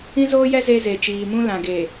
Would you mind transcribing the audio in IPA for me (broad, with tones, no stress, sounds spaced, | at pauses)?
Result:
ĩ˦ z oː˦ j ɛ˦ z e˦ z e˨ t͡ʃ iː˨ m ũ˦ l ã˨ ɡ e˨